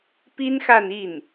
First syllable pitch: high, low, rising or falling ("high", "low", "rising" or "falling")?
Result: high